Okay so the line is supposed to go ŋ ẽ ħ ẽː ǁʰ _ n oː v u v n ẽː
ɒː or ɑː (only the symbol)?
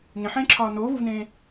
ɒː